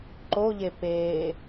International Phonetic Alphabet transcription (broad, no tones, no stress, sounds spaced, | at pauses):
ǃ o ʎ e p eː